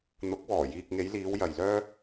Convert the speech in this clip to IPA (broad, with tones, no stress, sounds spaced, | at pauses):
n̪ ʊ˨˥ k̚ w ɔː˨˩ j iː˨ k̚ ŋ e˨˧ j l iː˨˧ w j ɐ˨ j l œː˥